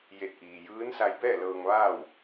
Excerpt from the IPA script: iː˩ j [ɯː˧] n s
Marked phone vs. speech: incorrect: ɯː˧˥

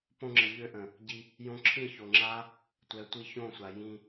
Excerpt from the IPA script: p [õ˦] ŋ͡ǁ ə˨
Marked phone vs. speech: incorrect: õ˧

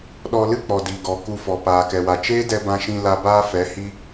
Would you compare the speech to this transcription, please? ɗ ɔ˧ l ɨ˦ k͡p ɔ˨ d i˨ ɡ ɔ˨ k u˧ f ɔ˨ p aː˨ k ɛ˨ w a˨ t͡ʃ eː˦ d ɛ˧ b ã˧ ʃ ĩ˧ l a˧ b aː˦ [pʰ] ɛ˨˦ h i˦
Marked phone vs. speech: incorrect: f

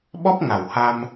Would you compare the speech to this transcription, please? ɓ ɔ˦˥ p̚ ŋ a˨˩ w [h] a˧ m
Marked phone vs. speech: correct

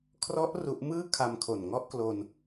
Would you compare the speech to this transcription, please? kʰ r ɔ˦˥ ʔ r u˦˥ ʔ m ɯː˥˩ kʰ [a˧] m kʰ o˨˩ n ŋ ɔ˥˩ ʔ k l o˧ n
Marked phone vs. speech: correct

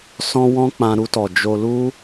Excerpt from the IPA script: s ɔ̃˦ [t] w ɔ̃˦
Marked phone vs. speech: incorrect: none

